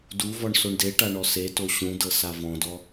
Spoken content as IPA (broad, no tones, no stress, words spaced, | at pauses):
duvɔɳ soɳdeʈa ɳɔseto ɕũdɤ savɔ̃dɔ